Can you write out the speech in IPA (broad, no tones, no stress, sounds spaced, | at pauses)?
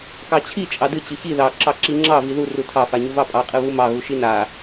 k ɑ t͡ɕʰ i t͡ʃʼ ɑ d ɨ t͡ɕ ɨ ç i ð ɑ ǁ ɑ ǁ i ŋ͡ǁ ɑ v i ð u r u tʰ ɑ f a ɲ u v ɑ pʼ ɑ qʼ ɨ β u m ɑ ɣ u ʃ i n a